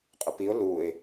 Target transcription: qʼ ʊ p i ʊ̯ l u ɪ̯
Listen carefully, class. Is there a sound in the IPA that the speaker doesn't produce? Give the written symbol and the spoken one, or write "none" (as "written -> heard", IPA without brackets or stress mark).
none